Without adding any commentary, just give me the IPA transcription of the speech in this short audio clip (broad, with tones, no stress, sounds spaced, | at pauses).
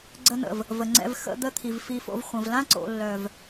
ɡ͡ǀ ə˧ n̪ ə̰˨ v | v ə˨ ŋ͡ǀ ɛ̰˧ v x ə̰˧ d̪ ə˦ t̪ʰ i˨ v f i˧ f o̰˧ v χʷ ə̃˨ v l ã˦ ǀ o̰˨ lː œ˨ v